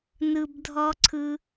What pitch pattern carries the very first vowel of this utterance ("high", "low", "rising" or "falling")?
high